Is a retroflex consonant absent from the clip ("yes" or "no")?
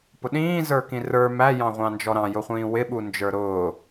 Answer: yes